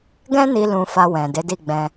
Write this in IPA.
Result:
ɡ ɛ̃˦ n i˧ l ũ˧ f a˧ w ɛ̃˨ d e˨˦ d i˦˨ ɡ͡b ɛ̃˧

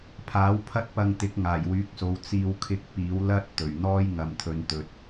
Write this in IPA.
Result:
pʰ aː˨˥ w pʰ ɐ˥ t̚ p ɐ˧ ŋ t̪ ɪ˨˥ k̚ ŋ aː˨˩ j w yː˨˥ k̚ s o˨˧ w t͡s iː˧ w kʰ ɪ˧ k̚ p iː˨˥ w l ɐ˥ t̚ t̪ ɵ˨˩ ɥ n̪ ɔː˥ j ŋ ɐ˨ m t̪ʰ ɵ˨˧ n t̪ ɵ˨ t̚

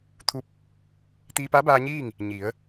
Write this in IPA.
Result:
t̪ʰ u˧ p̚ | t̪ iː˧ p a˧˥ b aː˧ ɲ iː˥˨ ŋ | ɲ i˩˧ ə̯

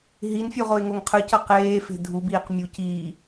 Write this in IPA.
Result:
ɦ i n fʲ u ʁ o ɪ̯ ŋ o ŋ qʰ ɯ c ʌ q eː f e̤ dʱ u b iː q mʲ u c iː

